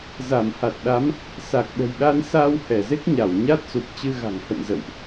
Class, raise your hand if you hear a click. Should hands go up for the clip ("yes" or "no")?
no